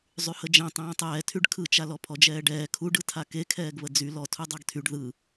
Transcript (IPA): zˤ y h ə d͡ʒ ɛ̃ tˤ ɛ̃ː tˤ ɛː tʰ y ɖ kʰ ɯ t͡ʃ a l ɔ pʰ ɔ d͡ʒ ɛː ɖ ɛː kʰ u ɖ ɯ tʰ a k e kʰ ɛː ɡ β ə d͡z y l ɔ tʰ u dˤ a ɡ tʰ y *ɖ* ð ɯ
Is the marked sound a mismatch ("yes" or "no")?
no